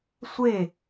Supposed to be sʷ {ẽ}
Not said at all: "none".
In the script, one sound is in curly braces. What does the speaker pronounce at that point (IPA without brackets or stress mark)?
e